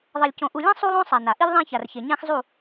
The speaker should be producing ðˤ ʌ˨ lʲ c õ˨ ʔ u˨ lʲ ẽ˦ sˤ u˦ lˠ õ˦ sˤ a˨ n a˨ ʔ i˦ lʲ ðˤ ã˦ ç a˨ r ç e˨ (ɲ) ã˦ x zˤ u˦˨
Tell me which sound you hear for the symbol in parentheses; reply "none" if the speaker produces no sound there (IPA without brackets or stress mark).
ɲ